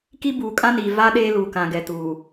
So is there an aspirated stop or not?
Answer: no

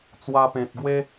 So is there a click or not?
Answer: no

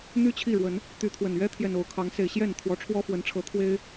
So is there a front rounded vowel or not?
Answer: yes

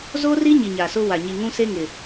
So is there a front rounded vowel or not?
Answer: no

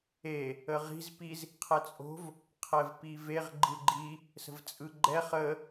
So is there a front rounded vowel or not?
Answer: no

